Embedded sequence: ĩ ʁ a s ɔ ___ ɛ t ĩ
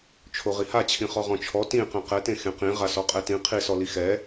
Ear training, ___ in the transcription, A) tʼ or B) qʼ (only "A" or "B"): B